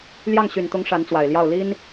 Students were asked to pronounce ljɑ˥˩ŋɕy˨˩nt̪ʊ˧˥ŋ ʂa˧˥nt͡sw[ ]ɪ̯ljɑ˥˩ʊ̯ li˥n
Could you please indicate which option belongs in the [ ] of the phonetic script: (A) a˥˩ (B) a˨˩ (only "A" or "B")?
B